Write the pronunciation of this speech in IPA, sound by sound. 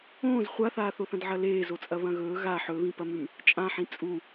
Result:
õː z χʷ a θ aː θ o θ ɐ̃ d ʕ ɐ l eː z o t͡sʼ ɐ β ɐ̃ ɣ ɵː ɣ a ħ ɵ β ĩ p ɐ m ʉ m | t͡ʃʼ ã ħ ĩ t͡sʼ u

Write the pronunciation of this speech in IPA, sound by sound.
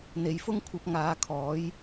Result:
n̪ e˨ j f ʊ˥ ŋ kʷʰ ɐ˧ p̚ ŋ aː˨˧ kʰ ɔː˨˥ j

